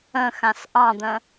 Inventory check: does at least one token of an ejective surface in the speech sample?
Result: no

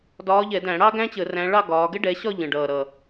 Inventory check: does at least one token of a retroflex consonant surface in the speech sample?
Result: yes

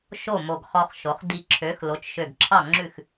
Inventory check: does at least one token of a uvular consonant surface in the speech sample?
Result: yes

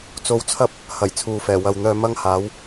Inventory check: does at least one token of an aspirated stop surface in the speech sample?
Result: yes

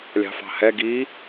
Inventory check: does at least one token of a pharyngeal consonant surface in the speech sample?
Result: no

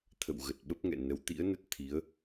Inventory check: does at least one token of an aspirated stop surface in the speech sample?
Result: yes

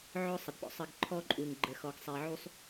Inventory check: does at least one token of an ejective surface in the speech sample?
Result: yes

